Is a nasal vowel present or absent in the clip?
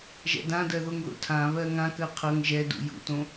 present